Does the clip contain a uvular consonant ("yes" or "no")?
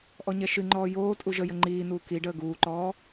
no